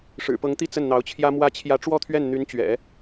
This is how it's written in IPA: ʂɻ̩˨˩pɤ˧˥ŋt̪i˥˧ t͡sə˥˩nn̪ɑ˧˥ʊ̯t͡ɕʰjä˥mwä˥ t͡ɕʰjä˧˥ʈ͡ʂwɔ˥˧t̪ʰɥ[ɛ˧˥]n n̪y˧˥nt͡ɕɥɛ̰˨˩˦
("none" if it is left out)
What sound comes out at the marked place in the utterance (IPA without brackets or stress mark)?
ɛ˥˩